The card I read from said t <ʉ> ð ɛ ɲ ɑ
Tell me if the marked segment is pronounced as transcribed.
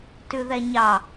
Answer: yes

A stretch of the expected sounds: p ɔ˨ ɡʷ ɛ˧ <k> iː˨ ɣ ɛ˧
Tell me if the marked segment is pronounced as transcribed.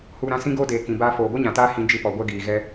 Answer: no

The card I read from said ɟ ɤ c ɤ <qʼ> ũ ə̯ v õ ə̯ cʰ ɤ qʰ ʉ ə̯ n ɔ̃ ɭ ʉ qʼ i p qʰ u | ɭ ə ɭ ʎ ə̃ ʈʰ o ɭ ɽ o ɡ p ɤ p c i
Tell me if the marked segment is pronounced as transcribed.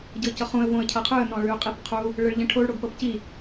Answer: no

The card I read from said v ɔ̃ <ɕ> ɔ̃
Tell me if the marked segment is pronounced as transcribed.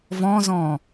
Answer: no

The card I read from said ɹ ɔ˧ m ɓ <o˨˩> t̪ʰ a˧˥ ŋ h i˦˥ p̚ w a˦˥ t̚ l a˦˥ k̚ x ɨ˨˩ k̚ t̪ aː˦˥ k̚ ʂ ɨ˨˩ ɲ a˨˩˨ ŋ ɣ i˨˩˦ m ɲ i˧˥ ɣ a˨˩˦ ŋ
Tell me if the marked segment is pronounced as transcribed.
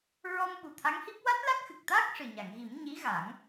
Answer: no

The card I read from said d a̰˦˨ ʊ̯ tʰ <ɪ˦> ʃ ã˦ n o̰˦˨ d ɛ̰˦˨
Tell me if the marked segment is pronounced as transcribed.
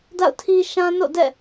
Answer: no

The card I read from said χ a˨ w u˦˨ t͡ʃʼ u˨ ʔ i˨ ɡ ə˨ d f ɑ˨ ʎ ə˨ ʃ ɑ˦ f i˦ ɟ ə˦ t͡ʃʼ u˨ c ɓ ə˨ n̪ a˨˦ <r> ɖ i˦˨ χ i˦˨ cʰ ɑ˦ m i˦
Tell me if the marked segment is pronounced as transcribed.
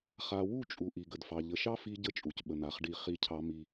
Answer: no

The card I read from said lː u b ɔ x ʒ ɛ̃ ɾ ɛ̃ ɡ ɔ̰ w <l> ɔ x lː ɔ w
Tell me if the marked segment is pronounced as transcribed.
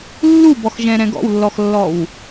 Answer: no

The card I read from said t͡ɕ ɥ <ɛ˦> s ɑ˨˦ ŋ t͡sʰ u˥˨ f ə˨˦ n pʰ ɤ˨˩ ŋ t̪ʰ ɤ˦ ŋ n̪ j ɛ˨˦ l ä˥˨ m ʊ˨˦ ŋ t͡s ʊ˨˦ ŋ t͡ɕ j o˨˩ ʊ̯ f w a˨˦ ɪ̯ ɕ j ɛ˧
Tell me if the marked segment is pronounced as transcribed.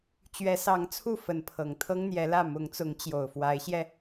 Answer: no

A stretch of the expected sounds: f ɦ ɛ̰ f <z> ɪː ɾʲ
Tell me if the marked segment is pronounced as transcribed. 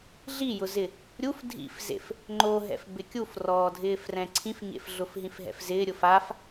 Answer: yes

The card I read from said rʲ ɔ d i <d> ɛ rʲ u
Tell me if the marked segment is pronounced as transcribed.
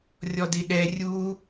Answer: no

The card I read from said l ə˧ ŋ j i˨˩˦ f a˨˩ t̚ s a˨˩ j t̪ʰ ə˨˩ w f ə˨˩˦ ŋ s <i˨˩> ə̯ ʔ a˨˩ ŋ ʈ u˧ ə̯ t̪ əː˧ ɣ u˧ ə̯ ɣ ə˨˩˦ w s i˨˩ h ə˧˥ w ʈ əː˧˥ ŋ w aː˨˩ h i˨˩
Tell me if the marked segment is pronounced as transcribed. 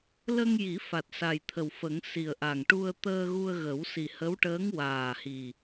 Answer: yes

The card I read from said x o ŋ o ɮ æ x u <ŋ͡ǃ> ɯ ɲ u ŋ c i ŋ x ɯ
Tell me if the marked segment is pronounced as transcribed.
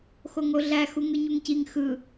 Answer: no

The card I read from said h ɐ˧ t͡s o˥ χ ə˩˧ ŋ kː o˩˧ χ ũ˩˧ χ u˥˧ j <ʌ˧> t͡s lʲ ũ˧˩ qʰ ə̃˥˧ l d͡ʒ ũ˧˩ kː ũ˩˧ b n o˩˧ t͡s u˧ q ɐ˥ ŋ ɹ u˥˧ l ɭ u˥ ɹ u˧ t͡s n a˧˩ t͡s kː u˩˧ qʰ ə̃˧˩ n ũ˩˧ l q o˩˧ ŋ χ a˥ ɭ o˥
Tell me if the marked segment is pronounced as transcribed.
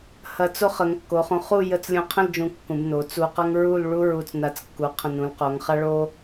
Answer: no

